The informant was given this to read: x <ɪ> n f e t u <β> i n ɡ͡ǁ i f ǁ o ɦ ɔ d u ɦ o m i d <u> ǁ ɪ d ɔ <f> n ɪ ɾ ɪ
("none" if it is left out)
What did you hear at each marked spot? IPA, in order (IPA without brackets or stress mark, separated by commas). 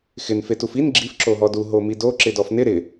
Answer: ɪ, f, o, f